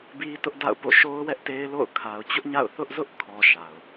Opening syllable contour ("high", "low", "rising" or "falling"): high